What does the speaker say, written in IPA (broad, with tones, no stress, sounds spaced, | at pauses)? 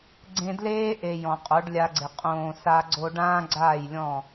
ɡ͡ǀ ẽ˧ d l eː˦ ʔ e˨ j ɔ̃˨ qʼ o˨˦ ɖ lʲ a˧ ɡ͡ǀ ɪ˨ qʼ õː˨ s a˧ ɡ͡ǀ o˧ ɖ ãː˦ ɡ͡ǀ aː˦˨ j lʲ ɔ̃˦˨